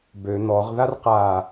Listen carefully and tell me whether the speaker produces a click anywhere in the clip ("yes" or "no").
no